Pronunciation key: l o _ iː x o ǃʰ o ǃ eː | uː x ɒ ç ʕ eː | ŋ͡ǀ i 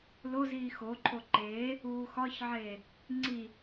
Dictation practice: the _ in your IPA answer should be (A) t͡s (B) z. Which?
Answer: B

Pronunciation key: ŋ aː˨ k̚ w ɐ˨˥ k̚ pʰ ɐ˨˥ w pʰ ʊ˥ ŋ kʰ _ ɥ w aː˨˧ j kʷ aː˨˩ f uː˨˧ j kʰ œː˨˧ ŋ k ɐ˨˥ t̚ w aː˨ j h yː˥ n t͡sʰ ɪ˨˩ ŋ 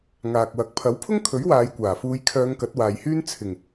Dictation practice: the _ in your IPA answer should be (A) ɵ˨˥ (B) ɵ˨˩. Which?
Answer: A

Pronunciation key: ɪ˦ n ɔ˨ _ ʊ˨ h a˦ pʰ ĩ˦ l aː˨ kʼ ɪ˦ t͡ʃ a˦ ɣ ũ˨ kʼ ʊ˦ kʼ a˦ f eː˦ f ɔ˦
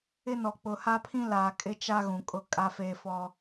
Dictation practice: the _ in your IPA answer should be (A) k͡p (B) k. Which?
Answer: A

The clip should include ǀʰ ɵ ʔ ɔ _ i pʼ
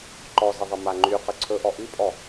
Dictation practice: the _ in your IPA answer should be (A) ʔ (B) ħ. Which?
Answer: A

